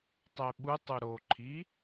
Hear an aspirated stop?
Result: yes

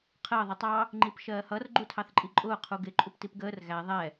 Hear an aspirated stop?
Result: yes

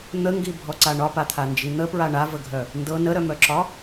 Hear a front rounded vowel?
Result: yes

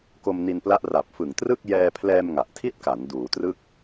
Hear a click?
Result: no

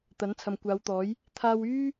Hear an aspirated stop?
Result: yes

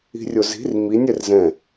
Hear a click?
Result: no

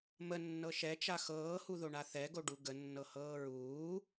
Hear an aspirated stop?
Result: no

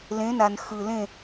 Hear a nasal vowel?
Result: yes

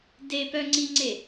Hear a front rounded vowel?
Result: yes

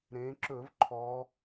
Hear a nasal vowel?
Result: yes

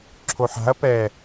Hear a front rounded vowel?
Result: no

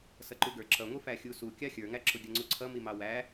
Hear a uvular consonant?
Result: no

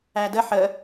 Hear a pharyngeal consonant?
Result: yes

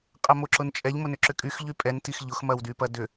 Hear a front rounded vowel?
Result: yes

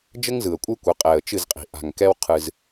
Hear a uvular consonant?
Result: yes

